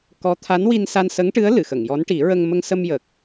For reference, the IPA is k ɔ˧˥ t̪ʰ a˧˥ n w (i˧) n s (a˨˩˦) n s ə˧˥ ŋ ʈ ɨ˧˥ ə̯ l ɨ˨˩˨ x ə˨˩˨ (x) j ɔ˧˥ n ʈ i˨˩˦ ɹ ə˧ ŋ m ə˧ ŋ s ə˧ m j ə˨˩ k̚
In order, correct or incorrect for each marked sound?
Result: correct, incorrect, incorrect

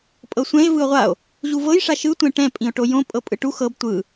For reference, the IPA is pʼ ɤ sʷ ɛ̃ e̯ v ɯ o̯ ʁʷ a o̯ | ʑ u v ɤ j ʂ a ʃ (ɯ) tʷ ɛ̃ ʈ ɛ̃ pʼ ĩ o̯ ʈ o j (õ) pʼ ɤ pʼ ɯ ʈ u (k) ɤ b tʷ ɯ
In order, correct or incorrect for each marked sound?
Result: correct, correct, incorrect

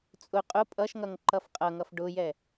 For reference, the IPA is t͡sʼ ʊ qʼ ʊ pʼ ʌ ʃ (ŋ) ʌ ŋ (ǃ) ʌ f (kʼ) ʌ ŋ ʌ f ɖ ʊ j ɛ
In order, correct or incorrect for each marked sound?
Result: correct, correct, incorrect

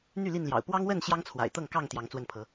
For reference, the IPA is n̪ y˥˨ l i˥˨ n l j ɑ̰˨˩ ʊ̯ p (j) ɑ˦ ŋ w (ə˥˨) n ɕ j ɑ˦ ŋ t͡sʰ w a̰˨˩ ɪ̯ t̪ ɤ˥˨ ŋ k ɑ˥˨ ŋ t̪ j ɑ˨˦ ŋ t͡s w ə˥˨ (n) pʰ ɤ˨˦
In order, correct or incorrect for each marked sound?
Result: incorrect, correct, correct

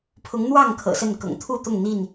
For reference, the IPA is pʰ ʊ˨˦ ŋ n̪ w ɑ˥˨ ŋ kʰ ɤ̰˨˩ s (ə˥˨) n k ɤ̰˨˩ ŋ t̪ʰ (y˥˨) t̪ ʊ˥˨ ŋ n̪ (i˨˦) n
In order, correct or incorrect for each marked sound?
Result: correct, incorrect, incorrect

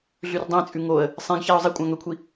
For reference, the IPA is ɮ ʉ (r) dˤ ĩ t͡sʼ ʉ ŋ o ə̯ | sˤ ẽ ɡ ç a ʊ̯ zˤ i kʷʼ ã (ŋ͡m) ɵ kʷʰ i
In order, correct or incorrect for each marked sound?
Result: correct, incorrect

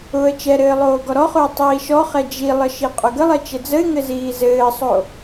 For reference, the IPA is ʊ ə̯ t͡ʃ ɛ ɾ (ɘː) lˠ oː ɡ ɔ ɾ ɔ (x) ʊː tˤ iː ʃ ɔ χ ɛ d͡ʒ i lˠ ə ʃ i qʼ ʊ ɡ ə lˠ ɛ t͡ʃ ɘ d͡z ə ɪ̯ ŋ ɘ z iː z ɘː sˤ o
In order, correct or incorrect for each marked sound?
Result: correct, incorrect

